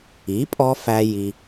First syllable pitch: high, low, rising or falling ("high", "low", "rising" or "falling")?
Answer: rising